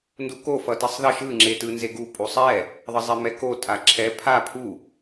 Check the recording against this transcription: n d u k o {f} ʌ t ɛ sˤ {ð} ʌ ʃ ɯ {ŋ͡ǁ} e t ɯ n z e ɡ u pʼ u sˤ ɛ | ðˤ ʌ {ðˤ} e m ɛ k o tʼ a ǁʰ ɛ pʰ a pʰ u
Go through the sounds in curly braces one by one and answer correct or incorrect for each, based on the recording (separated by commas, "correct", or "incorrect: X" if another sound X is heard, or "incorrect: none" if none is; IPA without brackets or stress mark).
correct, correct, correct, incorrect: zˤ